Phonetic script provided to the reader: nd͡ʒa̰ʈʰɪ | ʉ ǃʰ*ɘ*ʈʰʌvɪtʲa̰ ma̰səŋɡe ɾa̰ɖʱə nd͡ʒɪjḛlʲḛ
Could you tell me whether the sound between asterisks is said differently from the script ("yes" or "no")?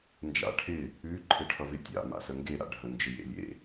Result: no